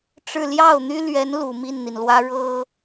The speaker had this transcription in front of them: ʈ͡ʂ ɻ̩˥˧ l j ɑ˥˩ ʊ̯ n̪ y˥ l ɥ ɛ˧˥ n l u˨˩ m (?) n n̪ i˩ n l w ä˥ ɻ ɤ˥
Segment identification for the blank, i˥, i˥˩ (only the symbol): i˥˩